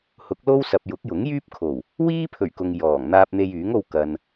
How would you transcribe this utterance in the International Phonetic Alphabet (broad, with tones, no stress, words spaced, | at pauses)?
hʊ˨˥k̚lo˥wsɐ˨p̚ jʊ˨˥k̚jʊ˨˥ŋjyː˥p̚ kʰo˨˩w | wiː˥pʰɵ˨˩ɥ kʊ˧ŋ jɔː˨˩ŋ n̪aː˧p̚n̪e˧jyː˨˥ŋo˧w kɐ˨n